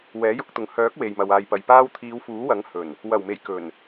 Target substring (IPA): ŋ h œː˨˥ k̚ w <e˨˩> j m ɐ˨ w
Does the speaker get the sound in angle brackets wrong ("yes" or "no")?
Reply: yes